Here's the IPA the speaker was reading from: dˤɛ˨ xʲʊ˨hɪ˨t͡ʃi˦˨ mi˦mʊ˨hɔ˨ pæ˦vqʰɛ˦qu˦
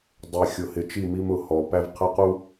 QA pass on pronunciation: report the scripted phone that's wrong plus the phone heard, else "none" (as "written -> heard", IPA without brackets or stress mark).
none